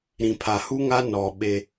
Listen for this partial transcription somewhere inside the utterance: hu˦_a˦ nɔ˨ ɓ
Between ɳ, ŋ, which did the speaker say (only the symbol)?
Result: ŋ